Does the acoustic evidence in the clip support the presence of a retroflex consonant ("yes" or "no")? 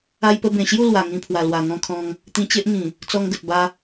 no